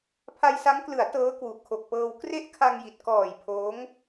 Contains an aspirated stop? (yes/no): yes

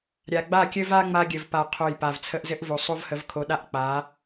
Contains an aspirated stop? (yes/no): yes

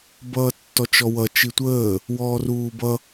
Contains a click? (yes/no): no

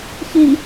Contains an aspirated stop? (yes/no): no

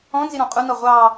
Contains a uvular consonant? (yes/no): yes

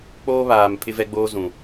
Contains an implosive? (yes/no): no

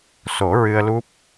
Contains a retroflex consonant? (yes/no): no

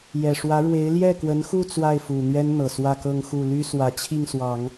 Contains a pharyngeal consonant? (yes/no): no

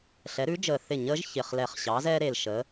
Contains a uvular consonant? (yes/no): yes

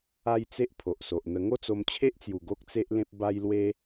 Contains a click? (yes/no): no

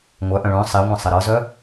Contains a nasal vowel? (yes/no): yes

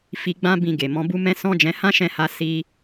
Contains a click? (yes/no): no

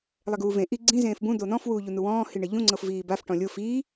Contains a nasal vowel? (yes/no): yes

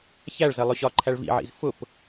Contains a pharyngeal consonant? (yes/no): yes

